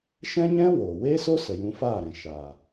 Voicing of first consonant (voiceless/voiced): voiceless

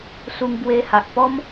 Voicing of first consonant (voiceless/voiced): voiceless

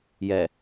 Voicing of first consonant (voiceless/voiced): voiced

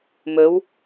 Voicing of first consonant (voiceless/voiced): voiced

